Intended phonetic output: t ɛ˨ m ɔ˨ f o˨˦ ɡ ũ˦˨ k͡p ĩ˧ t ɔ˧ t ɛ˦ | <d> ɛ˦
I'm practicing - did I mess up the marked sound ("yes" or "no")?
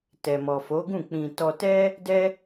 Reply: no